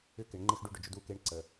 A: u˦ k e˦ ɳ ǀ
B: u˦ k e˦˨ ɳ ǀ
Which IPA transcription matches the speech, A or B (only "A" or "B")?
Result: A